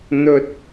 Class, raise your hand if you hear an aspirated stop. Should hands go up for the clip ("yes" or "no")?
no